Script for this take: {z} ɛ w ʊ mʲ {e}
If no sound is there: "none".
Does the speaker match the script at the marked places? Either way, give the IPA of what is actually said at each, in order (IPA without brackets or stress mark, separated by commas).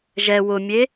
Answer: ʒ, e